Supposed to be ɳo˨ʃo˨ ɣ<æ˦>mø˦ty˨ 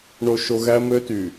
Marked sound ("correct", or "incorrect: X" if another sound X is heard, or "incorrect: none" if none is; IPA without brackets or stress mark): correct